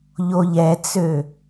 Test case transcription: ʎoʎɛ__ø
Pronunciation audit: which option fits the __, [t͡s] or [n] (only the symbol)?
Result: t͡s